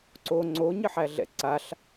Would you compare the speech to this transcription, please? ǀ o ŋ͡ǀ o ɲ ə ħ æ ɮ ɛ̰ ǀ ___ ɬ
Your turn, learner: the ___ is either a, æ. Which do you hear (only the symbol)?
a